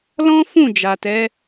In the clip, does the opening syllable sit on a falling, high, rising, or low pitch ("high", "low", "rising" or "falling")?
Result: high